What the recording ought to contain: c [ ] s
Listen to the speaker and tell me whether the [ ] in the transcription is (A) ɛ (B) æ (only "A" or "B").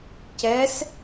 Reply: A